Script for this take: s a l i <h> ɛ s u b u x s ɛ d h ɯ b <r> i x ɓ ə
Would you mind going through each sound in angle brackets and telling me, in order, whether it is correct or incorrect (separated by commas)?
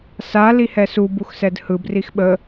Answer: correct, correct